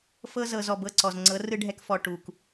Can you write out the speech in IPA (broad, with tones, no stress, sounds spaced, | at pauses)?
f ɤ˧ z ɤ˨ z ɔ˦˨ b ɤ˦ ǀ ɔ˨ z ŋ͡ǀ ɤ˨˦ r ɯ˦ ɖʱ ɛ˦ k f ɔ˧ ʈ u˨ k